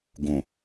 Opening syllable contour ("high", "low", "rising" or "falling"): low